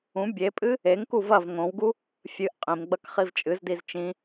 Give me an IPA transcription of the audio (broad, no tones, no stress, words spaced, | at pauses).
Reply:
ũ bʲepʼɨ | eŋku vɐv ŋõwɡu | fʲɨʔ qʼĩmɡ͡bɐk χivt͡ʃʼɨzdiz t͡ʃĩ